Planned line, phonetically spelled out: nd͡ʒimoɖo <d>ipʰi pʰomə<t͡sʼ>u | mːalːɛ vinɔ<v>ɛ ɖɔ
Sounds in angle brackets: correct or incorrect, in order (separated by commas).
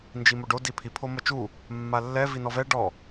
correct, incorrect, correct